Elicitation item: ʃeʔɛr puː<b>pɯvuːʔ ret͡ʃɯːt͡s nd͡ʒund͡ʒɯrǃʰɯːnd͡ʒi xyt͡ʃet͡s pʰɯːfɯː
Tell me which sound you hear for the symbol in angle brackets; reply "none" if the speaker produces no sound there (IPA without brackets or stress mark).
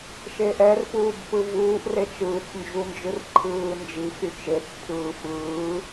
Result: b